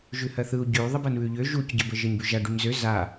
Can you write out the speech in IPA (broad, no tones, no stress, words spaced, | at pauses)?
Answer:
ʒʉhɜθɯu̯ ɟʉy̯ ðˤəbɜnβʉʎø ʒucɟə bəʒəɲbʉʒa ɖʉɲzø za